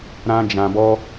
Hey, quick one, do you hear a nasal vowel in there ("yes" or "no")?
yes